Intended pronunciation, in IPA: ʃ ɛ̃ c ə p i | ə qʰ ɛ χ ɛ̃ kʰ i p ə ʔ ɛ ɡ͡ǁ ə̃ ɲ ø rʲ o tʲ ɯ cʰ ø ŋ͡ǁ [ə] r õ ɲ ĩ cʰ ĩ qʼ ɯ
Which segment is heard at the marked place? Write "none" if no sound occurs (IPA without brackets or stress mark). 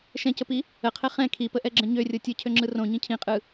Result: ɯ